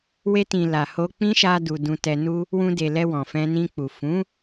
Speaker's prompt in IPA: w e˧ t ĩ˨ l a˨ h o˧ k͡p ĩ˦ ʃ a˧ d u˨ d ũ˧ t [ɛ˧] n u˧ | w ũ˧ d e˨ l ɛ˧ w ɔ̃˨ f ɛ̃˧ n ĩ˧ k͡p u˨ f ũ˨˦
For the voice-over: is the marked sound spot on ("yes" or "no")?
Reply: yes